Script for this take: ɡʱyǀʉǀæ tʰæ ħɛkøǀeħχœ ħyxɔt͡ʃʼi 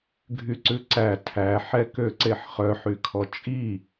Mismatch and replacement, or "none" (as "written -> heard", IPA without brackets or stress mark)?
x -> kʰ